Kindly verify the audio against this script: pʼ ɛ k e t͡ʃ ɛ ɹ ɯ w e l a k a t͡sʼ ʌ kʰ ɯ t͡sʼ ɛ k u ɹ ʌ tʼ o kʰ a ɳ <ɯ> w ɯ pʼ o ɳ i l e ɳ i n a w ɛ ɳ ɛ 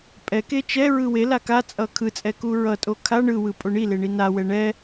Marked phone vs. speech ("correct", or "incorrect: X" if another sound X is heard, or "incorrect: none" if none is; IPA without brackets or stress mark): correct